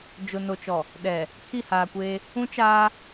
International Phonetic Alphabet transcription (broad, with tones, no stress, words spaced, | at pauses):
d͡ʒʊ˨no˨t͡ʃɔ˨ | ɗɛ˨ | kʰi˦˨haː˨kʷeː˦ | ũ˦t͡ʃaː˦